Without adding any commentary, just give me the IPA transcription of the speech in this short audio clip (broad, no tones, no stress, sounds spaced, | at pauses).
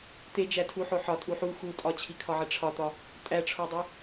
t̪ e d͡ʒ æ tʰ u ħ o ħ ɒ tʼ u ħ u x u tʼ ɒ t͡ɕʰ i kʰ ɒ ʕ e ʈ͡ʂʰ ɒ t̪ ɒ | tʼ æ ʈ͡ʂʰ o dˤ o